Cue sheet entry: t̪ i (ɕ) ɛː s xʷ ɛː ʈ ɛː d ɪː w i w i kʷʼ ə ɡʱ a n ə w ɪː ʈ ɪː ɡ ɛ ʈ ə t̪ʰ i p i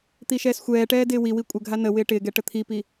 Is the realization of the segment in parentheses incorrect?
yes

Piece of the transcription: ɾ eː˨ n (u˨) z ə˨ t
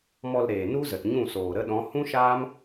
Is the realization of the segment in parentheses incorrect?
yes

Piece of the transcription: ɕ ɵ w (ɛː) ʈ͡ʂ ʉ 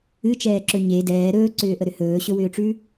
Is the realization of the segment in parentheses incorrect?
yes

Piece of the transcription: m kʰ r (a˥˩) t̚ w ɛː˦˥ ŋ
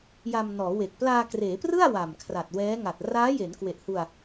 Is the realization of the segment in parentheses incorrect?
yes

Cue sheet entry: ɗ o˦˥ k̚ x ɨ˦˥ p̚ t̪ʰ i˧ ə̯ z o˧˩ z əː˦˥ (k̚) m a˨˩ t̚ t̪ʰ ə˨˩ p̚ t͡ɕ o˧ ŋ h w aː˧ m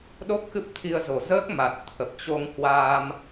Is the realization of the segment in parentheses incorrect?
no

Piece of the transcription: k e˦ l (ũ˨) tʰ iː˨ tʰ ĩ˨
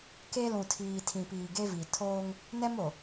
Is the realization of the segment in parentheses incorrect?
no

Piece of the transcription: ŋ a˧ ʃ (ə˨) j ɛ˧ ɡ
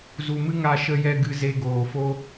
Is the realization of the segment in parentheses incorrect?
yes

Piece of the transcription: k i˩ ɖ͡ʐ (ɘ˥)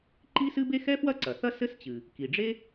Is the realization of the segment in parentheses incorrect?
yes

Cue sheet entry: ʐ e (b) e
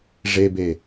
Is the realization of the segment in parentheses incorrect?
no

